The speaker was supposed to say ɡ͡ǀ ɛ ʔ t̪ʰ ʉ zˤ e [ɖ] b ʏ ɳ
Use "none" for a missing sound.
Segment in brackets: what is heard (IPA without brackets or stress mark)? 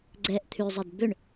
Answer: d